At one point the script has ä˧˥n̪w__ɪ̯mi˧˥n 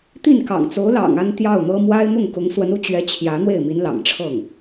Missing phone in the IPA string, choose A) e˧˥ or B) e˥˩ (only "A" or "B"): B